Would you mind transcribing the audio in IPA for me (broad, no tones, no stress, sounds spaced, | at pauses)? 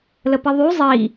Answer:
l ə p i ðˤ y zˤ i